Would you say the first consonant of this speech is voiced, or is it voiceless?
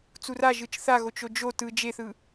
voiceless